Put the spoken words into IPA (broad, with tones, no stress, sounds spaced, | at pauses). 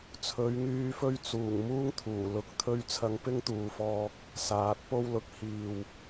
t͡sʰ ɵ˨˧ ɥ ŋ yː˧ f ɵ˥ ɥ t͡s uː˨˩ ŋ m uː˥ ŋ t̪ʰ uː˨˩ l ʊ˧ k̚ t̪ʰ ɵ˥ ɥ t͡sʰ ɐ˧ ŋ p ɪ˥ ŋ t̪ uː˨ f ɔː˧ k̚ | s aː˨˥ t̚ p o˥ w l ʊ˧ k̚ h iː˨ w